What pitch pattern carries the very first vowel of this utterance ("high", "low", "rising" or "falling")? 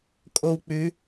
high